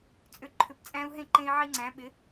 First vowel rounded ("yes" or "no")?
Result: yes